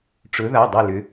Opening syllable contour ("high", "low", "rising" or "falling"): rising